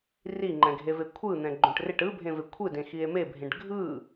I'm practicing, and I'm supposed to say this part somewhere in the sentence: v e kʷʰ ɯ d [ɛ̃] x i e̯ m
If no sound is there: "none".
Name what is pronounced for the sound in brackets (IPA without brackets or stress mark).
ẽ